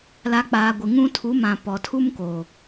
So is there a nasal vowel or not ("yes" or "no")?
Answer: yes